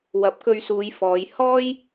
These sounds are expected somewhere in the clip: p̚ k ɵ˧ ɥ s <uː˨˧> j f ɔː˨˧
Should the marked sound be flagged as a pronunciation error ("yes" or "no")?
no